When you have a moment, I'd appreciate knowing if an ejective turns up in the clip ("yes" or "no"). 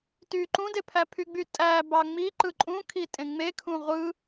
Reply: yes